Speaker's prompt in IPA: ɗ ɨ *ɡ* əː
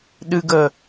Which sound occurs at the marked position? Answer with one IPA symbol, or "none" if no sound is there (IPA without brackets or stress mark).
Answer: ɡ